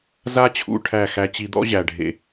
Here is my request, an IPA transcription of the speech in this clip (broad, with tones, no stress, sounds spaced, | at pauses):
z a˧ t͡ɕʰ ṵ˨˩ ʈʰ æ˨˩ x æ˧ t͡ɕ i˧ d̪ ɔ̰˥ ʑ æ˨˩ ɖʱ ḛ˨˩